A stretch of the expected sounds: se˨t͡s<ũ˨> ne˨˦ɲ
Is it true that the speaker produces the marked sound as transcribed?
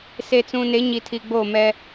yes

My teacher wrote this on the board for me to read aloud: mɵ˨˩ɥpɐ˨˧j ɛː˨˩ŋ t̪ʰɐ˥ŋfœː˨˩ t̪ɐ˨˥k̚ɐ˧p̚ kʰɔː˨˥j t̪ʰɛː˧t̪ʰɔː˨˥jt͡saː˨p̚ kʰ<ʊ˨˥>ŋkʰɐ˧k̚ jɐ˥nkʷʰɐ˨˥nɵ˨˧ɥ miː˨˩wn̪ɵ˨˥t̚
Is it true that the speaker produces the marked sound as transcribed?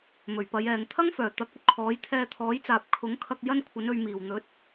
yes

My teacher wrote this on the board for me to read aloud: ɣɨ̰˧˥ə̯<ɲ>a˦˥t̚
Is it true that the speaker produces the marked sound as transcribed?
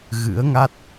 no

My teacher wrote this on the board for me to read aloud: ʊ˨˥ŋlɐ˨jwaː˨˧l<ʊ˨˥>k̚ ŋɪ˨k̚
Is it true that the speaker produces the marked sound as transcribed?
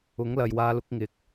yes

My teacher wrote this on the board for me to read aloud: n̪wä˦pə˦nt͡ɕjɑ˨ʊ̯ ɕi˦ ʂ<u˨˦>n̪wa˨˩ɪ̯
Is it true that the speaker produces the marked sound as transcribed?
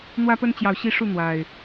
no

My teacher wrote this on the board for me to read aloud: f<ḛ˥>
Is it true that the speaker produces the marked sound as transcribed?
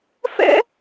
no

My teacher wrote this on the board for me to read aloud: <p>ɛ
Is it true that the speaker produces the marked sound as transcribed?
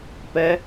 yes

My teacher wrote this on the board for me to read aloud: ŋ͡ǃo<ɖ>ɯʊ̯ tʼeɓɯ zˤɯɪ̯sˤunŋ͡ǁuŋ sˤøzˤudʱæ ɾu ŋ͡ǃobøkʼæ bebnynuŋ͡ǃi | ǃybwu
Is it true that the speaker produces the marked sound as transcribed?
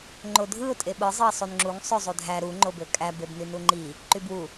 no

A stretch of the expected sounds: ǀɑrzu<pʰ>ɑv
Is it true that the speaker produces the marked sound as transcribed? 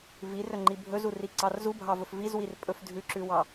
no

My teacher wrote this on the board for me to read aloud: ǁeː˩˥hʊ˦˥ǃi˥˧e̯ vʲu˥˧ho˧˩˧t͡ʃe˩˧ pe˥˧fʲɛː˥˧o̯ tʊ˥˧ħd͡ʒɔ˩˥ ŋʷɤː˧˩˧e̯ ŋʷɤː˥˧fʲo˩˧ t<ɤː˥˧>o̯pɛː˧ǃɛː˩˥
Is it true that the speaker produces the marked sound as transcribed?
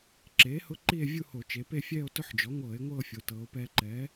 no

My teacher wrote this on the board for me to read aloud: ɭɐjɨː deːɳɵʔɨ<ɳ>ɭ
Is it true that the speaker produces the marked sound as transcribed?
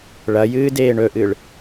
no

